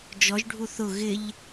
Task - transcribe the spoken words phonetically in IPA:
d͡ʒ ɔ ʒ ɖʱ u θ ʊ ɣ ɪ ʎ

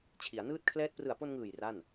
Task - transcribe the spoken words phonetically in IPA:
t͡ɕʰ i˩˦ a̯ n ɯː˦˥ t̚ kʰ l ɛː˦˥ t̚ p r ɯ˨˩ a̯ p o˧ n ŋ ɯː˨˩ j r a˥˩ n

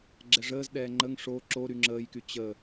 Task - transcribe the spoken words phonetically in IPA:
ɡ͡ǁ ɛ ʐ əː z ɗ ɛː ŋ͡ǃ ə ŋ ʂ o ǁ o ɾ y ŋ͡ǁ əː j k y t͡ɕ ə

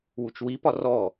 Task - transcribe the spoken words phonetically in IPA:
w u t͡ʃ w i p ɒ r ɔ

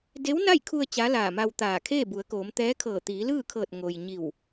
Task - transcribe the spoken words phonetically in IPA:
d e˧˥ w n a˥˨ j kʰ u˧ ə̯ t͡ɕ a˧˥ l aː˧˩ m a˧ w t̪ aː˧˩ kʰ eː˥˨ b u˩˧ ə̯ k oː˩˧ m t̪ ɛː˧˥ kʰ ɤː˧˩ t̪ iː˩˧ l ɯː˥˨ kʰ ɤː˧˩ t̚ ŋ o˩ j ɲ i˧˩ w

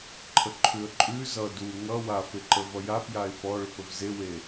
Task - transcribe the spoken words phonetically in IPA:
ǃʰ ə ǃʰ ʉ ə̯ ǃʼ ʉ z ʌ d u ŋ ʌ w a f e ǃ ə v ʌ j a p j a ɪ̯ p ɔ ɭ ʏ p ə v z e w e

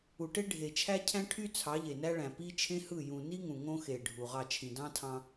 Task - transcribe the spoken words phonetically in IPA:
u˨ ʈ e˦ ɖʱ e˨ t͡ʃʰ æ˦ cʰ æ̃˦ ʈʰ y˦ t͡sʰ ɑ˨˦ ʎ e˨ n æ˦ ɭ æ̃˨ p i˦ t͡ʃʰ ẽ˦ h ɯ˦˨ j ũ˨ n i˦ ŋ ũ˨ ŋ õ˦ x e˨ ɖʱ u˨ ʁ ɑ˦˨ t͡ʃʰ ĩ˨ d ɑ̃˦ tʰ ɑ̃˦

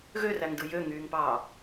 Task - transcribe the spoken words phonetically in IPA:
ɣ ø r æ ŋ d ɯ j ø ŋ yː ŋ p ɑː

